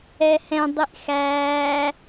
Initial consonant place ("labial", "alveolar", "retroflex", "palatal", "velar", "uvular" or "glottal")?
glottal